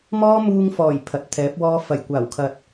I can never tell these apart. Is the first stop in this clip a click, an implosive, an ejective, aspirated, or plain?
aspirated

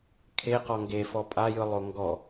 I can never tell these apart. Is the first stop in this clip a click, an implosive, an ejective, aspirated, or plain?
aspirated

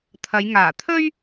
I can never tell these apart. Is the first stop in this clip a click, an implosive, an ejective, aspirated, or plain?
aspirated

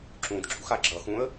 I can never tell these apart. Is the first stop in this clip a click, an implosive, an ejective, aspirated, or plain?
click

